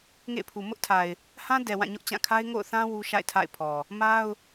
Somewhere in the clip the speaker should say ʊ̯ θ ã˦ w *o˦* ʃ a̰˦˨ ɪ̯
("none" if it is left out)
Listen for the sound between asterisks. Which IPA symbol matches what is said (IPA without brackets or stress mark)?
u˦